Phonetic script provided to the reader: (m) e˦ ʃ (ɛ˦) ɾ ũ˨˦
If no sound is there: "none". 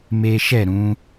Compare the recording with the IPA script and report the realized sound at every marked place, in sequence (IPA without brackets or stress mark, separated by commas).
m, ɛ˦˨